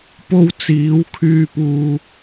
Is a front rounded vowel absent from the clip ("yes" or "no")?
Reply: no